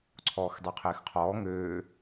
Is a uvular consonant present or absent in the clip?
present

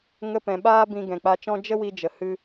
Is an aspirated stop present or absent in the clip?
absent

